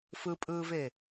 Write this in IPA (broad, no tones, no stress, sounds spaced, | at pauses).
f ɯ pʼ ɯː v e